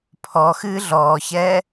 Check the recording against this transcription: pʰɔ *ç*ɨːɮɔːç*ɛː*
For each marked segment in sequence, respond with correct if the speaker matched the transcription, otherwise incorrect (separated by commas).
incorrect, correct